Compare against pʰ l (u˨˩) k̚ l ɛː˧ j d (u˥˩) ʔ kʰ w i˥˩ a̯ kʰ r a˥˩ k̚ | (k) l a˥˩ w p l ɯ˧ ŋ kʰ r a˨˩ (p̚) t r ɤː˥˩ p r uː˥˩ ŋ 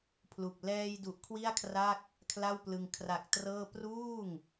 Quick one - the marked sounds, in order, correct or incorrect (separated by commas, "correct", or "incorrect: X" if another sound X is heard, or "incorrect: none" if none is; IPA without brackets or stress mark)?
correct, incorrect: u˨˩, incorrect: kʰ, incorrect: k̚